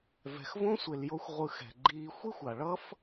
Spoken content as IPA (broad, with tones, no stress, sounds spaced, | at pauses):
v ɛ̤˨ x v õ˦ sʷ e˨ l j o˧ xʷ ʁʷ ɯ˨˦ x ɛ̤˨ ɡ͡ǃ iː˧ xʷ i˦ xʷ a˨ ɭ ʌ˦ f